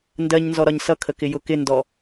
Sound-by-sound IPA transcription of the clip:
n d ɜ ɲ n z ɔ ɾ ɒ ɲ s ʌ kʰ ə k ɪ j ʊ k ɪ n d ɔ

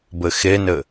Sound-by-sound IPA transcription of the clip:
b ɘ x e n ɘ

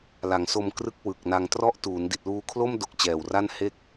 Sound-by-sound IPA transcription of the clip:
l a˩˦ ŋ s o˧ m k r ɯ˦˥ k̚ w ɯ˨˩ k̚ n a˧ ŋ t r ɔ˥˩ ʔ t uː˩˦ n d i˨˩ t̚ l uː˧ kʰ l o˥˩ m d o˦˥ k̚ t͡ɕ ɛː˨˩ w r a˥˩ n h e˥˩ k̚

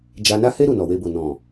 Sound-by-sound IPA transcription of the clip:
d͡ʒ a˧ n a˦ h e˦ ɾ u˦˨ n ɔ˨ w e˧ b o˨ n ɔ̃˨

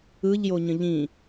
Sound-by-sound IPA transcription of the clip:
ɯ ʎ j o ɲ ə̃ ʎ ĩ

